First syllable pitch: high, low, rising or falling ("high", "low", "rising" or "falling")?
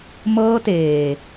high